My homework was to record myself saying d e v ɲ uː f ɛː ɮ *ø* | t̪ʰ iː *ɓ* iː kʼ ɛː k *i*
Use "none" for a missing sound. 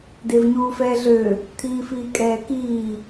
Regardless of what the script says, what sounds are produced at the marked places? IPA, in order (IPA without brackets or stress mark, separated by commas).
ø, f, iː